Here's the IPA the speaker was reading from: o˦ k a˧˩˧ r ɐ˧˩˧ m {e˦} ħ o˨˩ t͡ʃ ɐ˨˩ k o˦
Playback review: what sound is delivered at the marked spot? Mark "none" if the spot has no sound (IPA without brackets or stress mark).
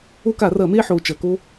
e˦